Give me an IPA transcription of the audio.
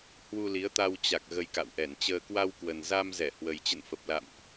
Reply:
h w u˧ l i˨˦ ə̯ t̪ a˧ w t͡ɕ a˨˩ k̚ ɣ ə˧ j k a̰˧˨ w ʔ ɛ˧˩ n t͡ɕ əː˧ k w a˧ w k w ə˨˩ n z a˧ m z ɛ˧˩ h w ə˨˩ j t͡ɕ ə̰˧˨ n f ə˨˩ p̚ l a̰˧˨ m ʔ

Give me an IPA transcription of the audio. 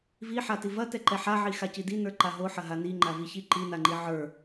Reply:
v i ħ a t i v ɐ t ɛ ǃ ɛ ħ a ʕ i x a c i d i n ə˞ ǃ a ɦ o ħ ɐ ɦ a n i ŋ͡ǃ a v i ç i ǃ i n a ŋ͡ǃ i ʕ ə˞

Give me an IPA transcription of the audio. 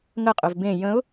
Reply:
ŋ ə qʼ ʏ v b ẽ j ə̃ ʊ̯

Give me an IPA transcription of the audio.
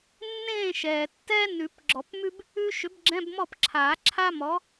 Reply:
nː ẽː˥˨ ʃ ɛː˩ tː ɛː˥ n ʉ˨˩˦ p ɡ͡ǁ ɔ˨˩˦ p m ʉ˥ b | ʉ˥ ʃ ʏ˨˥ b ɡ͡ǁ ɛ̃˧˥˧ b m ɔ˥˨ p ǁʰ a˨˩˦ ǁʰ a˥ m ɔ˨˥

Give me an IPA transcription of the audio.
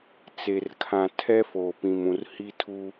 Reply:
t͡s e˨ r kʰ ã˨ tʰ ɛ˦ f oː˨ p ĩ˨ m ũ˨ r h i˦ tʰ u˦

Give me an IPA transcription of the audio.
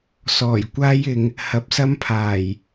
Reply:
s ɔː˨˩ j kʷ aː˥ j ɪ˨˧ ŋ | h ɐ˨˥ p̚ s ɐ˥ m pʰ aː˨˩ j

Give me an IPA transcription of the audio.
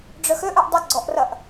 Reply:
ɖ͡ʐ œ x ø ʔ œ ʔ dˤ u ɡ͡ǀ ɔ ʔ r ɐ ʔ

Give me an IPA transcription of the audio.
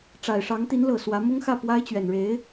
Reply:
ʈ͡ʂ a˨˩ ɪ̯ ʂ ɑ˧˥ ŋ t̪ i˧˥ n l ɤ˨˩ s w ä˧˥ m ʊ˥ ŋ x ä˥˩ p w a˥ ɪ̯ t͡ɕ ɥ ɛ˨˩ n ɻ e˧˥ ɪ̯

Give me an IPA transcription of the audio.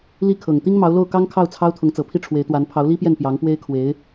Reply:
l i˥˩ kʰ ɤ˨˩ ŋ t̪ i˥ ŋ m ɑ˧˥ ʊ̯ l o˥˩ ʊ̯ k ɑ˥ ŋ kʰ ɑ˥˩ ʊ̯ t͡sʰ ɑ˥ ʊ̯ t̪ʰ ʊ˧˥ ŋ t͡s ɤ˨˩ pʰ i˥˩ ʈ͡ʂʰ w e˧˥ ɪ̯ t̪ w a˧˥ n pʰ ɑ˧˥ ʊ̯ l i˥ p j ɛ˥˩ n p j ɑ˧˥ ŋ p w e˥ ɪ̯ kʰ w e˧˥ ɪ̯

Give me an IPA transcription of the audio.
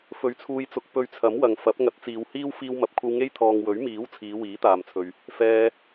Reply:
f ɵ˨˥ ɥ t͡sʰ uː˧ j t͡s ʊ˧ k̚ p ɵ˧ ɥ t͡sʰ ɐ˨˥ m w ɐ˨ ŋ f ɐ˨˥ p̚ ŋ ɐ˨˥ t̚ t͡s iː˨ w h iː˥ w f iː˥ w m ɐ˧ p̚ kʷʰ ɐ˥ w ŋ e˥ j t̪ʰ ɔː˧ ŋ w ɵ˨˥ ɥ m iː˨˥ w t͡sʰ iː˨˧ w iː˨˥ t̪ aː˨ m t͡sʰ ɵ˨ ɥ | f ɛː˨

